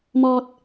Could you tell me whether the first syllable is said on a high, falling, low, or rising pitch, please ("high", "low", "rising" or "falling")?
low